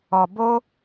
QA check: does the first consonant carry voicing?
yes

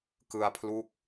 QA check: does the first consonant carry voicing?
no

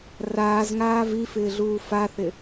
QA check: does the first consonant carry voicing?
yes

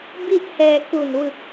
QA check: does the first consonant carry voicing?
yes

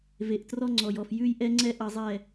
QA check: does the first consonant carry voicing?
yes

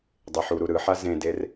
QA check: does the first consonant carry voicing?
yes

